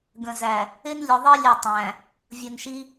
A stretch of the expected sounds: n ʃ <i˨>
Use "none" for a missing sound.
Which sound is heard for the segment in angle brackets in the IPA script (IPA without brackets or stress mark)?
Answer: i˦